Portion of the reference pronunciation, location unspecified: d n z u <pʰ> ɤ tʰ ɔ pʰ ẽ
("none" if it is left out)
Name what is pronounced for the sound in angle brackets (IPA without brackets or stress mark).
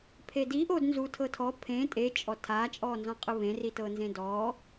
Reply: tʰ